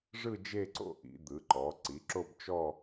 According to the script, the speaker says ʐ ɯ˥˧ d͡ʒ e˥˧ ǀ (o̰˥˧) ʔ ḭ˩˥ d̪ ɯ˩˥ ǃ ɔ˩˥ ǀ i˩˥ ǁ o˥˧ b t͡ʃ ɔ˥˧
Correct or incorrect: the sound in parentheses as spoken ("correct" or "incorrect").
correct